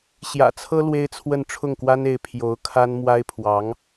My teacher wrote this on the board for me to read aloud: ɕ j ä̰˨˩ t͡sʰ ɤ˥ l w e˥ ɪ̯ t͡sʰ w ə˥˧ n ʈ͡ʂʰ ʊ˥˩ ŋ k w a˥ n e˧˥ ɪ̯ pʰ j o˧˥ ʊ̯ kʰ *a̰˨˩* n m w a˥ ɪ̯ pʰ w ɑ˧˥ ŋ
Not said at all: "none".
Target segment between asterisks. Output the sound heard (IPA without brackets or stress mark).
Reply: a˥